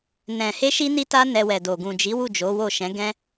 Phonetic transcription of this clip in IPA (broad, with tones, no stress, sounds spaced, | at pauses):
n ɛ̃˨ h e˧ ʃ i˦ n i˦ t a˦ n ɛ˧ w ɛ˨ d o˨ ɡ ũ˨ d͡ʒ i˨˦ w u˦˨ d͡ʒ o˨˦ w o˦˨ ʃ ɛ̃˨˦ ɡ ɛ̃˦